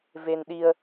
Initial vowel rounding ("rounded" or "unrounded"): unrounded